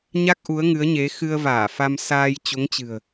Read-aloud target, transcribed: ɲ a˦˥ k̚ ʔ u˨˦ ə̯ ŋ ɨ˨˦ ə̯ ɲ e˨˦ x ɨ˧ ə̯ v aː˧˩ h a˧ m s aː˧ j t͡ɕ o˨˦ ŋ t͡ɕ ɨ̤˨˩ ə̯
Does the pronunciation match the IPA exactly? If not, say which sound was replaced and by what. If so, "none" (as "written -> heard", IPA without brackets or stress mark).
h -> f